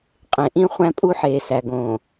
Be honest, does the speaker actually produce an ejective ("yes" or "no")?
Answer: yes